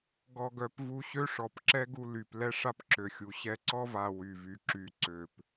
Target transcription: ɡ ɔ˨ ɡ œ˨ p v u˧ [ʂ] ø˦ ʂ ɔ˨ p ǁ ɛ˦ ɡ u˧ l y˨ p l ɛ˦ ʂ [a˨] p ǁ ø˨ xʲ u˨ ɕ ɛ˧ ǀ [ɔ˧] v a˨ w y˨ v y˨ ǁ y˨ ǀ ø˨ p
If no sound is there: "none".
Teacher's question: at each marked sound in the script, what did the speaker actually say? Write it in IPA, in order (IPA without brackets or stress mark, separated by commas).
ɕ, a˦, ɔ˦